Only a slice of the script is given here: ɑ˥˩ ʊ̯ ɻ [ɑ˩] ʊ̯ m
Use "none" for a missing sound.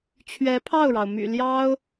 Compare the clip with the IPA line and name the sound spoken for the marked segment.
ɑ˩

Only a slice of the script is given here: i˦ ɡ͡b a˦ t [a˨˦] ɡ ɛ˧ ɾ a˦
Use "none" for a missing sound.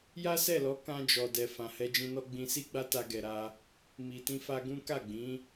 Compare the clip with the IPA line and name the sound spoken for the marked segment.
a˦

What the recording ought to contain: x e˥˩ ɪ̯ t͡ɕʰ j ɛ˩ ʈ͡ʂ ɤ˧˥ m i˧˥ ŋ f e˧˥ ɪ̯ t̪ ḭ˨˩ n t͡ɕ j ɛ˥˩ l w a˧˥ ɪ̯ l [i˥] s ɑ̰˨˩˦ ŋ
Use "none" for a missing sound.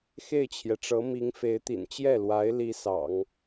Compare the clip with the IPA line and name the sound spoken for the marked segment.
i˥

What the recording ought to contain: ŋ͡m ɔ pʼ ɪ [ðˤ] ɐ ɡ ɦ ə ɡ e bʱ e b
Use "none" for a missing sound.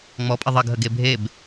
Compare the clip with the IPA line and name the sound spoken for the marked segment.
ðˤ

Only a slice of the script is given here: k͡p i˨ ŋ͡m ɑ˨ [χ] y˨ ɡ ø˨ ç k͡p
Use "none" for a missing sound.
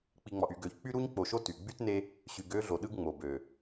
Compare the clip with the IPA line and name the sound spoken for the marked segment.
ʔ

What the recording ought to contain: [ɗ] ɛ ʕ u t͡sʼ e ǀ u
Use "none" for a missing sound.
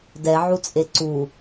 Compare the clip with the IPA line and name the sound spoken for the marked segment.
d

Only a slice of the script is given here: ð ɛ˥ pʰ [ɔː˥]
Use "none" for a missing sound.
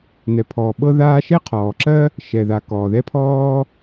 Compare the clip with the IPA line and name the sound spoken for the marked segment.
ɔː˥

